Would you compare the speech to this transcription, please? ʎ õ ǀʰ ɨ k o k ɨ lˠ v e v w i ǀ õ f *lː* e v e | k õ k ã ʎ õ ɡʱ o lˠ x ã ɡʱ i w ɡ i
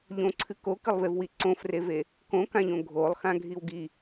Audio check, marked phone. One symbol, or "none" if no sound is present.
r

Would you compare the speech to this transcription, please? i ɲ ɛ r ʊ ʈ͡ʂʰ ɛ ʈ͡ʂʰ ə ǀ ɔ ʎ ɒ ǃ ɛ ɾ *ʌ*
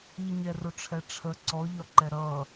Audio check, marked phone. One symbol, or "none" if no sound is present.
ʌ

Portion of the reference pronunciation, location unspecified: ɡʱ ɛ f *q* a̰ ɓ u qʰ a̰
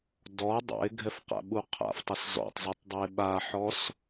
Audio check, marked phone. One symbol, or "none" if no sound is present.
q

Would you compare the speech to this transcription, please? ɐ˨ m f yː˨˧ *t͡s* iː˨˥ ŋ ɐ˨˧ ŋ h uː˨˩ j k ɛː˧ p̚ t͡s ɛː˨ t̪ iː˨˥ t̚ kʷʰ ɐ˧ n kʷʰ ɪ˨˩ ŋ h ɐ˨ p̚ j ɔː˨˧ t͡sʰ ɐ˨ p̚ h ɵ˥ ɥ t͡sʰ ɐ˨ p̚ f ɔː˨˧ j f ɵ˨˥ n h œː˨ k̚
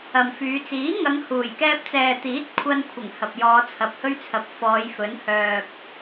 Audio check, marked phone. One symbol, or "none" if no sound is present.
t͡s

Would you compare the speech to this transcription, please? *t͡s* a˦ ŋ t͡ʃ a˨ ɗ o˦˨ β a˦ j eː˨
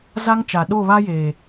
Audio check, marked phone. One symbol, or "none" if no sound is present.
z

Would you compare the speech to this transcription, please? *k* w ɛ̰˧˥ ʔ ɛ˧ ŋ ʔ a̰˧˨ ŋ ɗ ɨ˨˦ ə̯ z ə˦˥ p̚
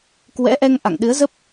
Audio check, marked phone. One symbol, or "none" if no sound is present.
k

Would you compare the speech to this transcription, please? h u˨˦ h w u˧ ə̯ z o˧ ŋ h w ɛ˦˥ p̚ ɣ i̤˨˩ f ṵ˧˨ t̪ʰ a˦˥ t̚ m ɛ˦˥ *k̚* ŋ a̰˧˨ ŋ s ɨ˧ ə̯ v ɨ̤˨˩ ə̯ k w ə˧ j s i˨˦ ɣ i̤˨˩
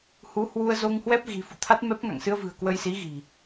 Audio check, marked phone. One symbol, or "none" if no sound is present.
p̚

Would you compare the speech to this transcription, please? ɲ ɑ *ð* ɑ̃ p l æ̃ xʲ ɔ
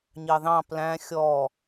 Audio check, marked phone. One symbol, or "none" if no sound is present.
ð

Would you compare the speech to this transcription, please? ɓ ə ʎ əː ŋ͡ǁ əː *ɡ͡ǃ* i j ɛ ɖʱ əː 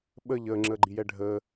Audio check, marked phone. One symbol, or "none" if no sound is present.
ɡ͡ǃ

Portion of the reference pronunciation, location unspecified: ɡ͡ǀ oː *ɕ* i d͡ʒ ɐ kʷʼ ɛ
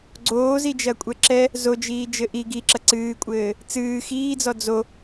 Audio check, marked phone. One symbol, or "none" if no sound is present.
z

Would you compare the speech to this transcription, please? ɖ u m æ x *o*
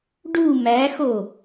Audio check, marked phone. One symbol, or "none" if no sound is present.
o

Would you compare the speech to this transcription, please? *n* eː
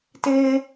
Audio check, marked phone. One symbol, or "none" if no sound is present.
t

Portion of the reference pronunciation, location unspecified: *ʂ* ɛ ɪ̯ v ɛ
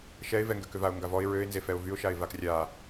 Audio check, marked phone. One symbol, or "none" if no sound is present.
ʃ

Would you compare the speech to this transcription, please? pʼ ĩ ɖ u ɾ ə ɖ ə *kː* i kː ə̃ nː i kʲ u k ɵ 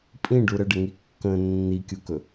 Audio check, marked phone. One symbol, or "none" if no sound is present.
ŋ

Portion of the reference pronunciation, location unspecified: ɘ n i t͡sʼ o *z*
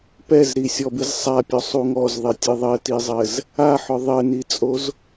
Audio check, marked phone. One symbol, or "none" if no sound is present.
z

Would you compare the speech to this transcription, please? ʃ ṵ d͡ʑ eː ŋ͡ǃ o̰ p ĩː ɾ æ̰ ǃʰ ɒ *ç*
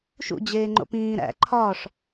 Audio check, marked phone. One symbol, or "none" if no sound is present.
ʂ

